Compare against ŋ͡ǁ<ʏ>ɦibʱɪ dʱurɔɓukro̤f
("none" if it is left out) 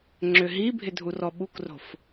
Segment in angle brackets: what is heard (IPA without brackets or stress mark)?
ʏ